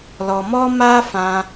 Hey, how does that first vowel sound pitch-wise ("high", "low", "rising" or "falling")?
low